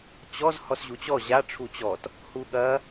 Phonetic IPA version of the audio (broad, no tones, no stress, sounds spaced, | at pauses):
t͡ɕ ɔ z h ɔ s ʑ u t͡ɕ ɔ ʑ a ʈ͡ʂʰ u t͡ɕ ɔ t | h u ɠ ɐ